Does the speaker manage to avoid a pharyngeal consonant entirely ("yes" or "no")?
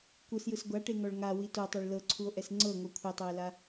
yes